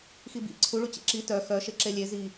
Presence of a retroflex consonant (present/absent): present